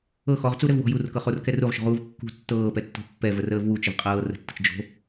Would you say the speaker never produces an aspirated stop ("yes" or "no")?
yes